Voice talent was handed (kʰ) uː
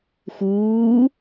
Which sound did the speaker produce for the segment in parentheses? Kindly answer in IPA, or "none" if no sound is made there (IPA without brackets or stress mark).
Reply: x